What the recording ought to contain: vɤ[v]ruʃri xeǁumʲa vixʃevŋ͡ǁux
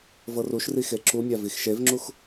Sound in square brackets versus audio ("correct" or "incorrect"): incorrect